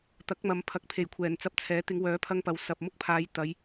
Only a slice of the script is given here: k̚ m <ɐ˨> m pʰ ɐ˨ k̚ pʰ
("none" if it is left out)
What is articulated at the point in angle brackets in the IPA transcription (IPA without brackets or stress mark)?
ɐ˨